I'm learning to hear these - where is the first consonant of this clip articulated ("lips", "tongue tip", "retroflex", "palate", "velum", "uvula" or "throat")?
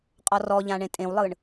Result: uvula